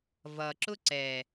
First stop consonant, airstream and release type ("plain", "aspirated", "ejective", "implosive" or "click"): click